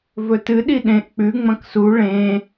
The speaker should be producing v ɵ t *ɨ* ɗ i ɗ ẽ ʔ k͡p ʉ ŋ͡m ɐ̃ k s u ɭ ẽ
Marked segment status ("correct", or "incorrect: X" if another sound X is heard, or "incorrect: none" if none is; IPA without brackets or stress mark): correct